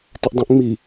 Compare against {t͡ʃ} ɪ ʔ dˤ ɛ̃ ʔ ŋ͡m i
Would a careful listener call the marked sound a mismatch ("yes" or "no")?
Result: yes